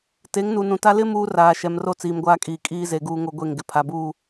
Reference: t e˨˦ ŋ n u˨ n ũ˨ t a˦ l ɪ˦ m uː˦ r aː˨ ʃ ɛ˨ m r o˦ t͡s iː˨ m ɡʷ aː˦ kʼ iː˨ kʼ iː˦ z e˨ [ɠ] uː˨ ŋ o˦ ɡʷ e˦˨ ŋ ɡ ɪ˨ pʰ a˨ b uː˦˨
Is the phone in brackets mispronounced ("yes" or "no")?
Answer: yes